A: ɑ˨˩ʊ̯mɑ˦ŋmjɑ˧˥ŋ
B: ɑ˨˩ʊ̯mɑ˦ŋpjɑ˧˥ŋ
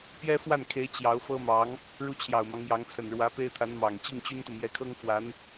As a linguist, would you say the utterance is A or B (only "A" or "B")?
A